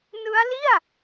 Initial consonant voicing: voiced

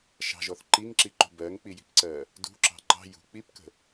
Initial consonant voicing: voiceless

